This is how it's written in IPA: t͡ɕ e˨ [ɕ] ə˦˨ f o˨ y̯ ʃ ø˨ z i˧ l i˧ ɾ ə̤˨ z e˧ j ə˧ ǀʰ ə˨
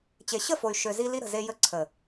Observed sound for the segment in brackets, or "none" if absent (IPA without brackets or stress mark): ɕ